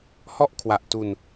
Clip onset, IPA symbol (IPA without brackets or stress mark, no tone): h